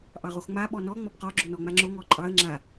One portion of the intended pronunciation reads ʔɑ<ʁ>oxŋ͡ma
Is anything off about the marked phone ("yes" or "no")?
no